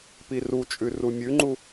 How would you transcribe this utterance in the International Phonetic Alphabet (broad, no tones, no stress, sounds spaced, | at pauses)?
p i r u t͡ʃʼ ʉ r u mʲ ʉ ŋ͡ǃ u